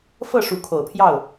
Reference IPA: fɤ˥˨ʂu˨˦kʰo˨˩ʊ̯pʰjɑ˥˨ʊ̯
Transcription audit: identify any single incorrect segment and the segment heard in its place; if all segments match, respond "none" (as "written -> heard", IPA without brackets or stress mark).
none